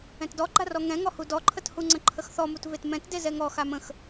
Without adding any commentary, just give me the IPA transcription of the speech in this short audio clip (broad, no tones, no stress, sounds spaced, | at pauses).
ɛ̃ t d ɔ ɡ͡ǃ a r ɔ ŋ ɛ̃ ŋ ɔ h u d ɔ ǃʰ ə t h u ŋ͡ǀ ə̃ ǃʰ ə x θ ɔ m u t v e t m ɛ̃ t d e z ɛ ŋ ɔ x a m ə̃ x